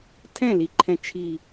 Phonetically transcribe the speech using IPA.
tʰ ɛ̃˥˨ l i˨˦ ǃʰ ɛ̃˥˨ t͡ʃʰ i˥˨

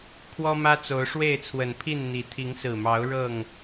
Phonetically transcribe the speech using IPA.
kʰ w ɔ˦ m ä˦ t͡s o˨˦ ʊ̯ ʂ w e˥˨ ɪ̯ t͡sʰ w ə˨˩ n pʰ i˥˨ n n̪ i˨˩ t̪ʰ i˨˦ ŋ s ɹ̩˨˩ m ɑ˨˦ ʊ̯ ɻ ɤ˥˨ ŋ

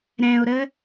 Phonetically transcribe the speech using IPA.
ɾ ɛ̃ː o̯ ɾ əː

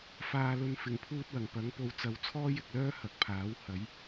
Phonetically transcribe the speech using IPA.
f aː˧ l ɵ˧ n f ɪ˨˩ ŋ pʰ uː˧ t̚ w ɐ˨˩ ŋ p ɐ˨˥ ŋ p o˨˧ w t͡s ɐ˨˧ w t͡sʰ ɔː˥ j ɪ˨ k̚ l œː˥ h ɐ˨ k̚ pʰ aː˨˥ w h ɐ˨˥ j

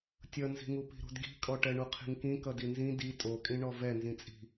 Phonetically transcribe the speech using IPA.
tʲ ʌ n z i̤ ŋ u p i̤ ɾ ṳ d ɡ i̤ kʼ ɔ ʈ ɛ ɳ u qʰ i̤ ŋ k ĩ k ʌ d i n z ĩ d i tʼ o kʼ ĩ ɳ ɔ v ɛ n z ĩ t͡sʼ i̤

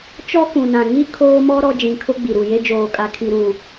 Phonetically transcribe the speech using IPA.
t͡ʃ ɔ˦ k ũ˨ n ã˨ ŋ i˦ kʰ oː˦ m ɔ˦ ɾ ɔ˦ d͡ʒ ĩ˨ kʰ ʊ˦ ɡ͡b i˨ ɾ u˨ j e˦ d͡ʒ oː˨ kʼ a˨ kʰ i˨ ɾ ũ˨

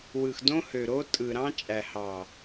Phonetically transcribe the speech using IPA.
w ɯ˨ x d õ˦ h ø˨ ɾ o˦ tʼ ɯ˨ ɾ ɑ̃˦ t͡ʃʼ æ˨ h ɑ˨

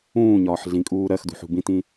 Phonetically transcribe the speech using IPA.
ũː ɲ ɒː ħ ɮ ĩ kʼ uː ɾ ɜ x d ṳ ħ ṳ b ĩ t ĩ

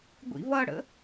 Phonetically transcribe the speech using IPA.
ɡʷ ḭ v ʌ ɽ ə̰

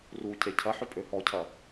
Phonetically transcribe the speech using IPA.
r u cʰ e cʰ ɐ ħ œ pʼ ø h ɔ cʰ ɐ

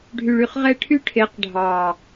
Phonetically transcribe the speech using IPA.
ɖʱ y˨ ɭ y˧ χ ʁ ɛ˧ ʈʰ y˦ ʈʰ e˨˦ q ɖʱ ɑː˨

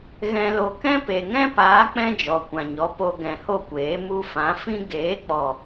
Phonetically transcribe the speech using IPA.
ɣ ɛ̃˧ l o˧ k ɛ̃˦ p e˨ ŋ ɛ̃˦ p aː˨˦ k͡p ɛ̃˦ d͡ʒ ɔ˨ kʷ ã˨ ɲ ɔ˨˦ p o˧ ɡ ɛ̃˨ h o˦˨ kʷ eː˨˦ m u˧ f ã˨˦ f ĩ˦ ɡ eː˨˦ k͡p ɔ˨

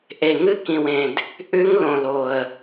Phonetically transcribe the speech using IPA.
ʔ e˨˩ ŋ ɨ˦˥ k ĩ˨˩ w ẽ˨˩ d | ʔ ʉ˦˥ ŋ l õ˨˩ l o˨˩ ə̯

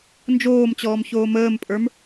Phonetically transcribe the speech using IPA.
n d͡ʒ oː m t͡ɕ ɔː m ç oː m əː m pʼ ə˞ m

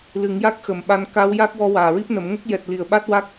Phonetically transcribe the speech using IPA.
l ɨ˨˩˦ ŋ j a˦˥ k̚ x ə˨˩˨ m ɓ a˧ n k a˧˥ w j a˦˥ k̚ w ɔ˧˥ w aː˨˩ ɹ i˦˥ p̚ n ə˨˩˦ m ŋ ə˦˥ k̚ j ɛ˨˩ t̚ l i˨˩ ə̯ ɓ a˦˥ t̚ w a˦˥ k̚

